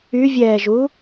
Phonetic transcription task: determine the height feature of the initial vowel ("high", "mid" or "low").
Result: high